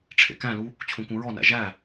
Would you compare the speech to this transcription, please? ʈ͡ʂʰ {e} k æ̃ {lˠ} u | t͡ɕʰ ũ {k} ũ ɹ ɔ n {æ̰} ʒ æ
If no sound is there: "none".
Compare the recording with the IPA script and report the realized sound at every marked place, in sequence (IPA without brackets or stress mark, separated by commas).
ḛ, l, k, æ̰